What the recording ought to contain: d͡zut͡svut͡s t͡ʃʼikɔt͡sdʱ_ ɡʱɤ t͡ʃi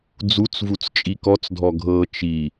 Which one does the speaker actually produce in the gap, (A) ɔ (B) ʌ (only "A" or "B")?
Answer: A